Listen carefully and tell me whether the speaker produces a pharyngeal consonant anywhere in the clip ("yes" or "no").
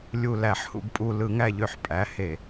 yes